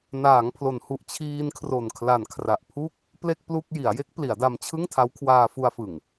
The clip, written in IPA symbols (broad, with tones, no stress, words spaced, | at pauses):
naː˩˦ŋpʰlo˩˦nhu˨˩ʔ t͡ɕʰiː˧nkʰro˨˩nkʰla˨˩n kʰra˨˩ʔpʰu˥˩k̚ | ple˥˩k̚plu˥˩k̚ ji˩˦a̯je˦˥k̚ pli˩˦a̯da˧mt͡ɕʰɯ˥˩ŋ tʰa˦˥wkʰwaː˧fu˧a̯fɯ˨˩ŋ